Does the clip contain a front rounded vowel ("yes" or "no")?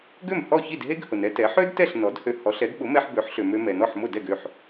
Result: yes